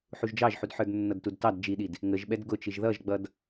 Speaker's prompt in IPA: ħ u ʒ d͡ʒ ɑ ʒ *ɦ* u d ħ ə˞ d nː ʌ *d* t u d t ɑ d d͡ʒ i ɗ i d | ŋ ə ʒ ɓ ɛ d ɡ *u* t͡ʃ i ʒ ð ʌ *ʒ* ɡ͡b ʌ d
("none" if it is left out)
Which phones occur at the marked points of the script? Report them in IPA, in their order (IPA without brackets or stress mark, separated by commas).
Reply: ħ, d, ʊ, ʒ